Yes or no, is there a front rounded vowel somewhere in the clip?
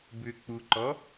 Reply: yes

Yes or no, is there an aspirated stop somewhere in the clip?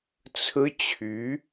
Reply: yes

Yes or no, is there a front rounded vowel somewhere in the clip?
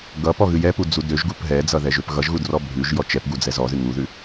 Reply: yes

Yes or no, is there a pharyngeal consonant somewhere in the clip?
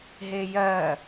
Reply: no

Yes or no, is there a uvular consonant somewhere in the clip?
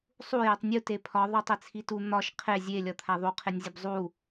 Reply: yes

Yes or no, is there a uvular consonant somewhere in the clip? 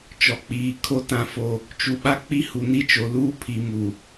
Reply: no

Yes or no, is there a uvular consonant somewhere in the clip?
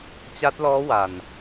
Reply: no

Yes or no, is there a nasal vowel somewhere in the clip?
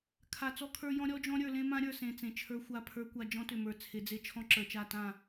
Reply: yes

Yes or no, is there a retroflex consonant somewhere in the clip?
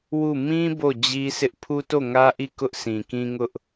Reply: no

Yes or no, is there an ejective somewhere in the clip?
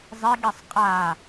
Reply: yes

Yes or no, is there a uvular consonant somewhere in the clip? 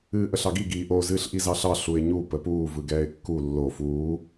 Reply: no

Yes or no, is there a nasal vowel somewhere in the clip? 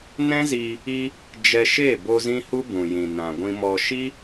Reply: yes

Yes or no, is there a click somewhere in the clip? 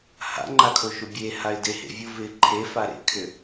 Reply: yes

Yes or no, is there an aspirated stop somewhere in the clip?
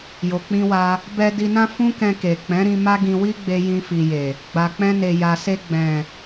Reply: no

